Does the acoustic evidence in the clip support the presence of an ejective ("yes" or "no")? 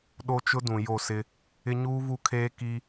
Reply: no